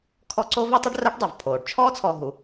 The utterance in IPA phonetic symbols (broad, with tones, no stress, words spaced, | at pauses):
kʰɔ˦ǀo˥vi˥tˤɘ˥ɖ rɐː˥ʈdˤo˩vpʰoː˩ɖ t͡ʃʰɔː˥t͡sʰɔ˨ ɦu˩